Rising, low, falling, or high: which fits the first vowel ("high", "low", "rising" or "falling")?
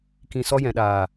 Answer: low